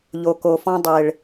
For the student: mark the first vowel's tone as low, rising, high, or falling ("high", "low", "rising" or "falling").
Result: low